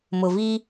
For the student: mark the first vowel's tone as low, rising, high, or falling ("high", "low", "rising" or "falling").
low